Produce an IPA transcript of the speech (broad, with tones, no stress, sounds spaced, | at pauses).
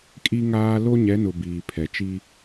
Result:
kʼ i˦ ŋ aː˦ l o˦ ɲ ɛ˨˦ n ʊ˨ b iː˨ pʰ ɛ˨ t͡ʃ i˦